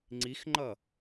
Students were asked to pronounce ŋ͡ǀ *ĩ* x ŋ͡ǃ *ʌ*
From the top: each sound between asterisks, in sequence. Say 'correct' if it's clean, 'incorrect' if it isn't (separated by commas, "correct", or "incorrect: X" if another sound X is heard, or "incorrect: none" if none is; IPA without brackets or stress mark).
incorrect: i, correct